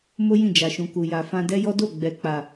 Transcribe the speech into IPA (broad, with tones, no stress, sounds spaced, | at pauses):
m o˦ j ĩ˦˨ d͡ʒ a˨ ʃ ũ˨ k u˨ j a˨ f ã˧ d ɛ˦ j ɔ˦ d o˦˨ ɡ͡b ɛ˨ k͡p a˨